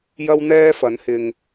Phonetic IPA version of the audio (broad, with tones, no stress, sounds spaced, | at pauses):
j ɐ˥ w n̪ ɛː˥ f ɐ˨˥ n h ɪ˧ ŋ